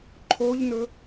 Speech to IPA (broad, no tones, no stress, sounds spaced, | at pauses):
ǃʰ o ʎ n ɵ